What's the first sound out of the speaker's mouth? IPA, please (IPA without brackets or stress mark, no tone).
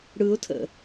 ɽ